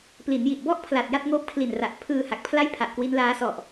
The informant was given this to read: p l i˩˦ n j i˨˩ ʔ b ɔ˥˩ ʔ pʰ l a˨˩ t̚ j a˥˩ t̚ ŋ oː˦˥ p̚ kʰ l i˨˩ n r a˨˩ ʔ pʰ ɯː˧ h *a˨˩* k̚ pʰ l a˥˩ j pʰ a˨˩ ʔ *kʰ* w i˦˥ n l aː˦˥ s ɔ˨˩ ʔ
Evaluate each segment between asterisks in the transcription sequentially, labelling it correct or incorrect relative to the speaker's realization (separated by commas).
correct, incorrect